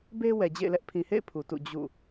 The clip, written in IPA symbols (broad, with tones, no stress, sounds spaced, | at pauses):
b e˦ w ɛ˨ d͡ʑ ḛ˦˨ ɪ̯ l ɛ˦ ʔ pʰ ĩ˨ h ḛ˦˨ ɪ̯ pʰ u˨ t ṵ˦˨ d͡ʑ ṵ˦˨